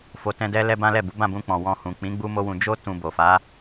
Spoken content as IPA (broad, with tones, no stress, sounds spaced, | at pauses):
f o˧ t ɛ̃˦ d ɛ˦ l ɛ˦ b ã˦ l ɛ˦˨ b u˨˦ b ã˦˨ b ũ˧ k͡p ɔ̃˨ w ɔ̃˧ h ũ˨ k͡p ĩ˨˦ ɡ͡b u˦ m o˦ w ũ˧ d͡ʒ o˦ t ũ˧ b o˨ f a˨˦